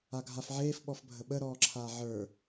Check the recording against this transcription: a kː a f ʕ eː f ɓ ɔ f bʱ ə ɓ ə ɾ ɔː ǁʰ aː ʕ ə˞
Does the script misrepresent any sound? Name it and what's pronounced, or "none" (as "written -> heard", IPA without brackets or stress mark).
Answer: kː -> ɡʱ